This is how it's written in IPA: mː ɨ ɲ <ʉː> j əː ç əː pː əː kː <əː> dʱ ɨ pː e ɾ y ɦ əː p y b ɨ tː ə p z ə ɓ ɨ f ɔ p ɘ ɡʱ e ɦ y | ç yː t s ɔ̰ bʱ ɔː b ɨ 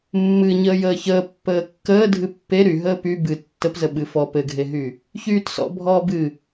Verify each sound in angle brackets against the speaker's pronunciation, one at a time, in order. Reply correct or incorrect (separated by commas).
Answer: incorrect, correct